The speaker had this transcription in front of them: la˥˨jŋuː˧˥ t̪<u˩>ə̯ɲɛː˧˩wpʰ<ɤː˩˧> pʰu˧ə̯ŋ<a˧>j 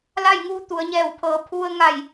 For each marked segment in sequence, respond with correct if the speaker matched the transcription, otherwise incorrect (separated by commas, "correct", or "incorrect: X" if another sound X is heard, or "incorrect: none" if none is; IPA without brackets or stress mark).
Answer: incorrect: u˩˧, correct, incorrect: a˧˩